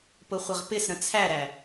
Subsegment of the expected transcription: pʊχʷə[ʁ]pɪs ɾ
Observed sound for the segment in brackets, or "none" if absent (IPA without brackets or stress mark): ʁ